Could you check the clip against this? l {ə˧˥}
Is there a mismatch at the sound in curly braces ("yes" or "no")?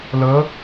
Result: no